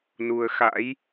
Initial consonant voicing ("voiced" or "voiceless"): voiced